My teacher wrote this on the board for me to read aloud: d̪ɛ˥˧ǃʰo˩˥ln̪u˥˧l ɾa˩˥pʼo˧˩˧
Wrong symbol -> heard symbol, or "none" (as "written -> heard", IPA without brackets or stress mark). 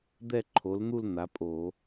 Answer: ɾ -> n̪